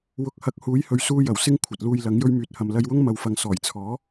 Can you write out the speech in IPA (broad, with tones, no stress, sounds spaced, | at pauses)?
w ʊ˨˥ k̚ h ɐ˨˥ k̚ h uː˨˥ j h ɵ˨ ɥ s uː˧ j ɐ˨˩ w s ɪ˧ ŋ kʷʰ ɐ˨ t̚ l uː˧ j l ɐ˨˥ ŋ j ɵ˧ ɥ m yː˨ t̚ h ɐ˨ m l ɐ˧ j w ʊ˥ ŋ m ɐ˨ w f ɐ˨ ŋ s ɔː˨˩ j t͡sʰ ɔː˨˥